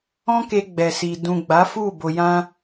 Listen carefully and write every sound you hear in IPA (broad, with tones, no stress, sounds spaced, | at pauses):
ɔ̃˦ k e˧ ɡ͡b ɛ˨ s i˨ d ũ˨ ɡ͡b a˨˦ f u˦˨ b o˧ j ã˦